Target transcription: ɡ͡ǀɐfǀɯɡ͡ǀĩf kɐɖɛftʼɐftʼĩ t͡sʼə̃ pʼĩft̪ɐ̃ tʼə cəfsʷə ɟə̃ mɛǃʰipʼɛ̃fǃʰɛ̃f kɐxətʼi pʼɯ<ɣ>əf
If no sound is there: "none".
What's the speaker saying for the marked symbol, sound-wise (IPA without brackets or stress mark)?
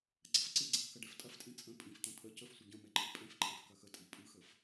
x